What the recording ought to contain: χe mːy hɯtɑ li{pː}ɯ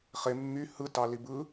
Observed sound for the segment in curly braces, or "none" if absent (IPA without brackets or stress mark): b